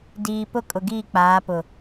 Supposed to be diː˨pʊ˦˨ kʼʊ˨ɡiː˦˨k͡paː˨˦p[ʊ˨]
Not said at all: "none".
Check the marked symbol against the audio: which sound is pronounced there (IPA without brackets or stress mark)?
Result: ʊ˨